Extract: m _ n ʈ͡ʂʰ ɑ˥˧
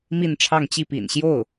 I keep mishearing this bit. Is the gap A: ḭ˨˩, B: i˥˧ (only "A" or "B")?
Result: B